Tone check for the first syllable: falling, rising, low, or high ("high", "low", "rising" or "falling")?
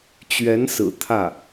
rising